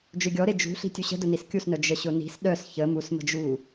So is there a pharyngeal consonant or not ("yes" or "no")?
no